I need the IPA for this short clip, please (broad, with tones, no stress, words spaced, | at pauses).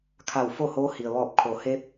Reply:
kʰa˧˩wfo˥˨hoː˧˥ hi˩ə̯ʋɔː˧˩p̚ kʰo˩˧ he˧˥p̚